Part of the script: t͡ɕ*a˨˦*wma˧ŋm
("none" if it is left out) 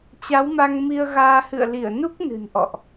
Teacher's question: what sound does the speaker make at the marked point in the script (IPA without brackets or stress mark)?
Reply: a˨˦